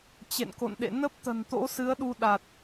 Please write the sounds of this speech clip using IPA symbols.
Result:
t͡ɕ ḛ˧˨ n k o̰˧˨ n ɗ ḛ˧˨ n ə˦˥ p̚ t̪ ə̤˨˩ n t̪ o̰˧˥ s ɨ˨˦ ə̯ ɗ u˧ ɗ a˨˩ t̚

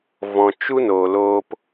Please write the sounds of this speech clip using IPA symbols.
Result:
v ɔ̃˨ t͡ʃ u˦ n oː˨ l oː˧ p

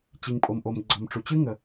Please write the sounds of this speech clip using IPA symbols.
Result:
t͡ɕ i˩ ŋ pʼ o˩ m ʔ o˩ m ɡ͡ǀ ɔ˩ m ʈ͡ʂ u˩ t͡ɕ ɨ˥ ŋ ə˩

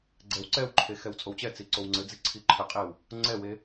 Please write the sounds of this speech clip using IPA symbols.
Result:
ɡ͡ǀ ɛ w ǀ ɛ w ǃʰ e x ɛ w t͡sʼ o w t͡ɕ ɛ t͡s i ǀ o w ŋ͡ǀ ɘ d͡z i ǀʰ i ǃʰ ɘ qʼ e w | ŋ͡ǀ ɛ w e

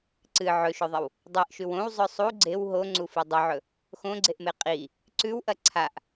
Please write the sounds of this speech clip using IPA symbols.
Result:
ǀ ɨ ʕ ɵ ʃ ɵ ðˤ ɐ w | dˤ e ʔ ʃ ʉ w õ w zˤ ɵ sˤ u ɡ͡ǀ e w ɦ o ŋ͡ǀ u f i dˤ ɵ ʕ ɵ | x õ ɡ͡ǀ e ʔ m e qʼ i | ǀ ʉ w ʔ ɐ ǀʰ a ʔ

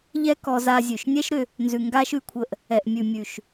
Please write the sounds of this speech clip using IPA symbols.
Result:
ʎ ɛ˦ k ɔ˧ z a˧ zʲ ʉ˨ ʃ nʲ ɛ˦ ʃ ɾ ʏ˧ | n z ʉ˨ ŋ ɡ a˧ ʃ ʉ˧ kʷʰ ə˧ ʔ | ɛ˨ ʔ mʲ ʉ˨ mʲ ʉ˨ ʃ

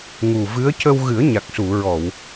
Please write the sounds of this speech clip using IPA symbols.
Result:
ŋ u˨˩ v ɨ˧˥ ə̯ c ə˧ w ɣ ɨ˨˩˦ ə̯ ɲ a˨˩ k̚ s u˨˩˨ ɹ ɔ˨˩˨ w

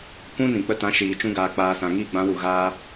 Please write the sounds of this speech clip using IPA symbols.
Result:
kʷ ũ˦ n ĩ˨ k͡p ə˧ t ã˨˦ ʃ iː˨ t͡ʃ ũ˧ ɡ aː˨ k͡p aː˨ s ã˨ ŋ iː˧ ɡ͡b ã˨˦ w u˨ ɣ aː˦

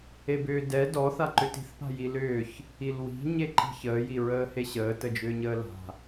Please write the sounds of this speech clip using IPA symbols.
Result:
e b ʏː d ɛ d ɔ θ a ǃ ʏ t i̤ θ p a̤ j i l ʏː ç | i l w i̤ ɲ e ǃ i̤ ç əː j i ɹ əː h e ɕ əː t ə d͡ʒ ʏː ɲ əː l a̤

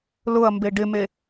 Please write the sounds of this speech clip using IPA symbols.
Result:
l ʊ ɐ̯ m b e ɖ ɪ m e

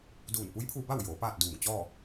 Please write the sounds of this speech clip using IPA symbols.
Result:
d uː˧˩ n p u˧˥ j pʰ uː˧ b a˥˨ w j oː˩˧ p aː˥˨ t̚ d uː˧˩ ŋ t͡ɕ ɔː˥˨

